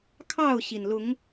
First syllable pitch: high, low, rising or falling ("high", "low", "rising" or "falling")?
falling